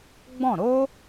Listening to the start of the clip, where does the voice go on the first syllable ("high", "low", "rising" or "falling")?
falling